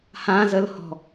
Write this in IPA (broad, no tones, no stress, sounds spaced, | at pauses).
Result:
h ã z ə l h ɔ̤